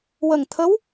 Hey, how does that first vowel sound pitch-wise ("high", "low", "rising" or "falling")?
low